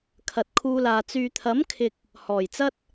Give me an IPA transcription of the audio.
kʰ ɐ˨ t̚ kʰ uː˧ l aː˨ t͡s yː˨ t̪ʰ ɐ˨˥ m kʰ ɪ˨ k̚ | h ɔː˨˩ j t͡s ɐ˥ t̚

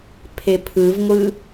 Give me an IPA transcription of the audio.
pʰ e pʰ ɯ v ŋʷ ɯ

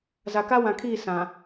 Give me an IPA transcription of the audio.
z a˨ k a˦ w ã˨ kʰ iː˦˨ s ã˨

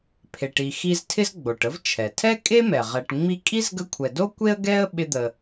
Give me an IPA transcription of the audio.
pʰ e˨ ʈ i˨ x i˦ z tʰ ɪ˥ z ɡ͡b o˩ ʈ ə˥ v t͡ʃʰ ɛ˩ tʰ ɛ˥ kʼ e˥ m ɛ˩ ʁ ɛ˨ ʈ ŋ͡m i˦ kʼ i˥ z ɡ ə˦ kʷʰ ɛ˨ d o˥ kʷ e˥ ə̯ ɡ ɛ˦ ə̯ ɓ ɪ˦ d̪ ə˨

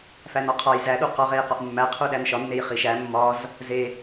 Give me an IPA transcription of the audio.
f æ n ɒ qʰ ɒ j z æ ɗ u q ɒ ʁ e j q ɒ ʔ mː æ qʰ u ɗ æ n ʃ ɒ nː e j χ i ʃ æ mː ɒ z | z e

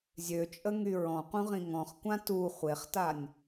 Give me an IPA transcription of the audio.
zʲ ø t͡ʃʼ ə ŋ y ɹ ɔ̃ q ũ ʁ ĩ ŋ ɔ̃ χ kʷ ã t u χʷ e χ t a nʲ

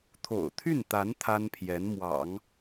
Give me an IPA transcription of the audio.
t̪ʰ o̰˨˩ ʊ̯ t̪ʰ y˥˩ n t̪ a˧˥ n t̪ʰ a˥ n pʰ j ɛ˧˥ n m w ɑ̰˨˩˦ ŋ

